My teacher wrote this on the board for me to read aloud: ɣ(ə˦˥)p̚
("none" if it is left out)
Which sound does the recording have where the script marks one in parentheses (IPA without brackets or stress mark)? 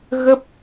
ə˦˥